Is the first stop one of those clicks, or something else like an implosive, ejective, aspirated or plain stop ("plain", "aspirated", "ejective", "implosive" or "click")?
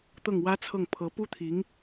plain